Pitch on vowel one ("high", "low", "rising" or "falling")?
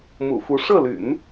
low